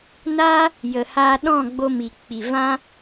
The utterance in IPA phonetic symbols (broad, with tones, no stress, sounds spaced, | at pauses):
n aː˦ | j ə˨ h aː˧ ɗ ɔ̃˦˨ ɡ͡b o˧ m i˨ k͡p i˨ v ã˦